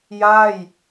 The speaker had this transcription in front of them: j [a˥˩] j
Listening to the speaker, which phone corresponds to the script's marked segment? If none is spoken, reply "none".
a˥˩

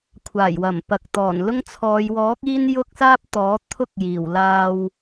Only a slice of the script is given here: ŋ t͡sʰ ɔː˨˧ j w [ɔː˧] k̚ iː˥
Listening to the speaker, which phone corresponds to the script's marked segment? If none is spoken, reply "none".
ɔː˨˥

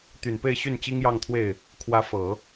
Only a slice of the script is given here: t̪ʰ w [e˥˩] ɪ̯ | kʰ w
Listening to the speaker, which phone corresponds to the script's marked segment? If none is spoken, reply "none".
e˥˩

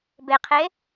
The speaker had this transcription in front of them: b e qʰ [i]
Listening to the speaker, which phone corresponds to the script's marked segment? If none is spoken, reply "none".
e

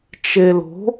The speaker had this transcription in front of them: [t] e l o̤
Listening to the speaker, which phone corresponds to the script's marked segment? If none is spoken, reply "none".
t͡ʃ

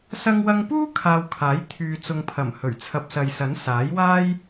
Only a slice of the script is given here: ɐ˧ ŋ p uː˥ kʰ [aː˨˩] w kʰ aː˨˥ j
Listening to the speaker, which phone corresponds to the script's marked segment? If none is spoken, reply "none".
aː˧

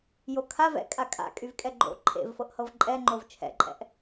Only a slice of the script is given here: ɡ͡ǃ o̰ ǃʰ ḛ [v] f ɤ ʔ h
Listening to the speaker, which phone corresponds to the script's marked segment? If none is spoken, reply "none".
v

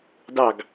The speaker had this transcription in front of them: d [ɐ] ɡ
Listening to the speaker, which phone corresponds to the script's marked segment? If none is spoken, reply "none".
ɑ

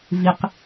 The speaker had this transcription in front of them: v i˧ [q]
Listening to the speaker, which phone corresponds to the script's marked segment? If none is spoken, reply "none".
q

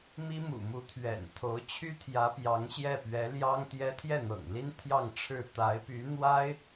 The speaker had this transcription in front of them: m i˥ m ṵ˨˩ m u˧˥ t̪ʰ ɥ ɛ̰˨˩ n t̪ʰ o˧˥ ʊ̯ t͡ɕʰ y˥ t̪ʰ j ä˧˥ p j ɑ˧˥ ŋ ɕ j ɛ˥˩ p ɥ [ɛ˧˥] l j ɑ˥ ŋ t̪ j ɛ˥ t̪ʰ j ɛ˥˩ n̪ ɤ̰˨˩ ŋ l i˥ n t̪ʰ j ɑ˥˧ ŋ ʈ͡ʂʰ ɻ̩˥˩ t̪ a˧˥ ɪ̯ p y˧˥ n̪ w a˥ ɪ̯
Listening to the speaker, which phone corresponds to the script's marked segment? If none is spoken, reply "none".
ɛ˧˥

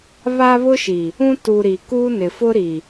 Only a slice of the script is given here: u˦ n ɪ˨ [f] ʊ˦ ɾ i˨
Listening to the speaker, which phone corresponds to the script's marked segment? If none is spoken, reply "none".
f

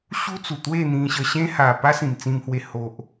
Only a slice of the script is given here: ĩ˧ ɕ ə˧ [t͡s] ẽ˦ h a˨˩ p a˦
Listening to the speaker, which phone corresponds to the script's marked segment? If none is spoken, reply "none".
ɕ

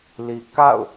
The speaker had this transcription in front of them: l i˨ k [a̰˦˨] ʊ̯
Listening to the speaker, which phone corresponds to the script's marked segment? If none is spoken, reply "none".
a̰˦˨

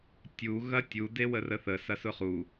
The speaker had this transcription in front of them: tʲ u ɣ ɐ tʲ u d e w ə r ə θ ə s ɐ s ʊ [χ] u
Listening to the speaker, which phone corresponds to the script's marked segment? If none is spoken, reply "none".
χ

